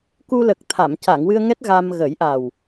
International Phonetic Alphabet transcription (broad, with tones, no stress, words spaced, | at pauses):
ku˧lə˨˩k̚ t̪ʰa˨˩˨mca˨˩˨ŋ wɨ˧ə̯ŋɛ˦˥t̚ ɣa˧m ɣə˨˩˦jʔa˨˩w